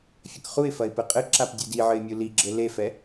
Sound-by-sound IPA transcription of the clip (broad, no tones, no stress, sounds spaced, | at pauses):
fʲ ɐ k χ u ɪ̯ f ɐ ɪ̯ p ɘ qʼ ɘ ǁ a p dʲ ɨ d i ʕ ɘ ɪ̯ mʲ u l i ɡ͡ǁ ɘ l e f ɛ